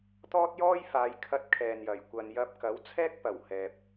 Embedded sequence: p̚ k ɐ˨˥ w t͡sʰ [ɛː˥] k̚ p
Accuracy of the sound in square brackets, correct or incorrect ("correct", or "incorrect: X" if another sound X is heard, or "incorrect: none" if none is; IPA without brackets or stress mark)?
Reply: correct